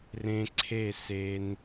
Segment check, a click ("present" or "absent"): present